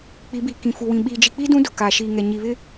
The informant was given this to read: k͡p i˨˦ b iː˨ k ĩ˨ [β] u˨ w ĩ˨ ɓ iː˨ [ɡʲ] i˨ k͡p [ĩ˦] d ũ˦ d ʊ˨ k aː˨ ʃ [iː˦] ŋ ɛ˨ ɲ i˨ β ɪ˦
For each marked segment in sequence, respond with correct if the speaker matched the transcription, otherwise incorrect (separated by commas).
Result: incorrect, incorrect, incorrect, incorrect